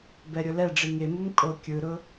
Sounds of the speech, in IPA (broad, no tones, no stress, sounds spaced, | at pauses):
b ɛ ɾʲ ʊ l ɛ ɖ͡ʐ i ŋ e m u m kʼ o kʲ ɯ ɾ ʊ